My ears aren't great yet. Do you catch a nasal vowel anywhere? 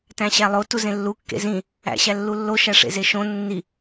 yes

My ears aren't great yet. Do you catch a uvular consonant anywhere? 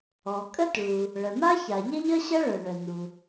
no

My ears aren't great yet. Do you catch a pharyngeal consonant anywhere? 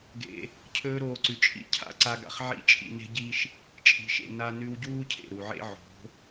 yes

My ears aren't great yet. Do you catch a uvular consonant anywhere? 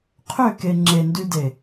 yes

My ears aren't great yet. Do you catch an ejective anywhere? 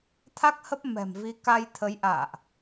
no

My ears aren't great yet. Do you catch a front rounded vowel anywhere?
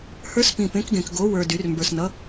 yes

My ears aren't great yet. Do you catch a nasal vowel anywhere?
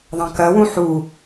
yes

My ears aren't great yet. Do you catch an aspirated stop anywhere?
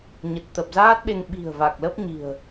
no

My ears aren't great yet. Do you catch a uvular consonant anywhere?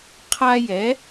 yes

